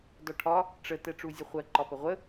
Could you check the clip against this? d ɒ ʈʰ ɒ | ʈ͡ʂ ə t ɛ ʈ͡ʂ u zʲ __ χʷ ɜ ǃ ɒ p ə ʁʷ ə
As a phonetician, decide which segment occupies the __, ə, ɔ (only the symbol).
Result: ə